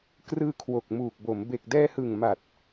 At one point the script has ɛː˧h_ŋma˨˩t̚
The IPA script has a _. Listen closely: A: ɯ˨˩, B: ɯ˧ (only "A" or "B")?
A